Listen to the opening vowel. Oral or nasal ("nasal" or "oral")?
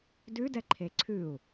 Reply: oral